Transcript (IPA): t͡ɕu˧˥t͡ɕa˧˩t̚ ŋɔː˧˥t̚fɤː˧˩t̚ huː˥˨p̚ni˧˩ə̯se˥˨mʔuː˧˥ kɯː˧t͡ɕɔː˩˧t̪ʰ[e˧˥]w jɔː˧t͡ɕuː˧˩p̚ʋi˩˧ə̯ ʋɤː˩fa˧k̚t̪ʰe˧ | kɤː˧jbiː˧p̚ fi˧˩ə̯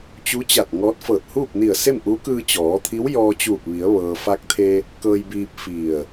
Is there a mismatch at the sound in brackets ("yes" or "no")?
yes